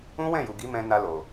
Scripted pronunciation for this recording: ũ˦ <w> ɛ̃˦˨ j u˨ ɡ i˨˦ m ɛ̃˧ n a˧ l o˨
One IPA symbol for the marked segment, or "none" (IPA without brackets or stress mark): w